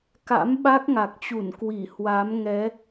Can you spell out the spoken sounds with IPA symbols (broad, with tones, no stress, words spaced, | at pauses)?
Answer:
ka̰˧˥mɓa˦˥k̚ŋa˨˩k̚t͡ɕu˧˩n kwi˧˩hwa˨˦mŋɛ˨˦